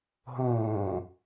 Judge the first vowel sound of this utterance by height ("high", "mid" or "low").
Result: mid